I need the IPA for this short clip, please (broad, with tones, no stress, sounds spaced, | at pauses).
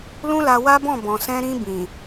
l ũ˦ l a˧ w a˦ b ɔ̃˦˨ b ɔ̃˨ s ɛ̃˧ ɾ ĩ˧ b ĩ˨